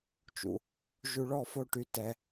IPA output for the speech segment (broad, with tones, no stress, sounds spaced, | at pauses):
t͡ʃ ṵ˩ | ʒ u˧ ɭ ɔ˥˧ f o˥˧ ʈ y˧ t ɛ˧